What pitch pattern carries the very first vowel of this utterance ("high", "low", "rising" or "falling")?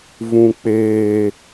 low